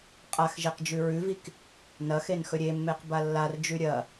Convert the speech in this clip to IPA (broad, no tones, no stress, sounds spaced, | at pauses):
qʼ a x ʒ e q d͡ʒ ʉ ɹ ʉ v i k | n ɐ x e n x ɵ ɾʲ e mː e q b a lː a r d͡ʒ ʉ ɾʲ ɐ